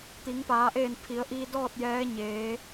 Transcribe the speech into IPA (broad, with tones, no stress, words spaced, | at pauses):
t̪i˩˧ŋpaː˩˧ʔeː˧˩n pʰi˩˧ə̯ʔiː˧ dɔː˥˨t̚ jɛː˧˥ɲeː˩˧